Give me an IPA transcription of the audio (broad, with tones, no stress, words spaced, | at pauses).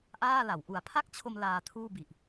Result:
ʔaː˥˩la˩˦w ʔu˩˦a̯pʰa˥˩k̚t͡ɕʰo˧m laː˧tʰuː˥˩bi˨˩ʔ